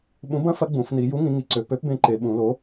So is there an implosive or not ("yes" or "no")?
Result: yes